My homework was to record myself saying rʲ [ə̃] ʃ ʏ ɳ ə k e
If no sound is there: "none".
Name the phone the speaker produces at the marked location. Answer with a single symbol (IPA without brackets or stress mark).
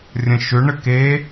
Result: ə̃